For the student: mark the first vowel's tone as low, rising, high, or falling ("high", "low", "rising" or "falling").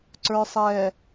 low